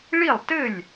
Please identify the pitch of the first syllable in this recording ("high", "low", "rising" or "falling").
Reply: falling